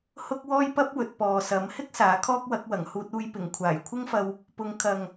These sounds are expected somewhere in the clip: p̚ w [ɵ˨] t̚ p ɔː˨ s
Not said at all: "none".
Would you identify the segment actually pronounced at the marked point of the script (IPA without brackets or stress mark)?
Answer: ɵ˨